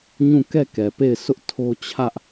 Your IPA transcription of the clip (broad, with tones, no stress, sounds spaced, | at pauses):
ɲ ũ˦˨ k ɛ˦˨ k ɛ˨ p e˦˨ ɪ̯ s ʊ˦ ʔ tʰ o˦ t͡ɕʰ ä˦ ʔ